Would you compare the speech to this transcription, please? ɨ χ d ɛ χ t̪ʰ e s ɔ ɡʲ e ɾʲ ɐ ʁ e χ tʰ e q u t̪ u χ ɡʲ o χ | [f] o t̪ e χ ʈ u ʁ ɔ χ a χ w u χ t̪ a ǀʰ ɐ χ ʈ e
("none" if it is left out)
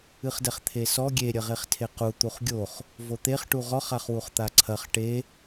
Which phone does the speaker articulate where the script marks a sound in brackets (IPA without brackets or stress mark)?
v